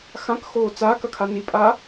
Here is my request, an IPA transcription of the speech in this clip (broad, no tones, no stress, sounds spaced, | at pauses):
x ã k x oː t͡s aː k ɐ kʰ a n i pʼ a